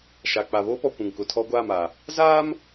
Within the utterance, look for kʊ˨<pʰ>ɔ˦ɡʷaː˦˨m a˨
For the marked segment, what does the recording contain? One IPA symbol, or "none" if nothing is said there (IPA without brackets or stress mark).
tʰ